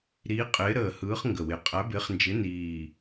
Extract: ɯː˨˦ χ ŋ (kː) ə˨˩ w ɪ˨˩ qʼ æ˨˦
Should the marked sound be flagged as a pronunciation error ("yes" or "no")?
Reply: yes